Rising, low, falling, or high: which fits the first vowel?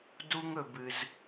high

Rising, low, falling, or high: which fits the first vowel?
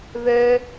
high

